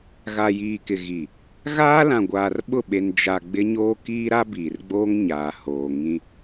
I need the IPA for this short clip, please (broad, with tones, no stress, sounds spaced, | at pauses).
ɣ a˨ j iː˨ k ɪ˨ ɣ i˨ | ɣ aː˦ l ã˨ ɡʷ aː˨ r ɓ ʊ˦˨ ɓ e˨ n d͡ʒ a˨ ɡ͡b ɪ˦ ɲ oː˦ k iː˦ ɾ a˦ b iː˨ r ɡ͡b oː˦ ŋ ɲ aː˨ h oː˨ ŋ ĩ˦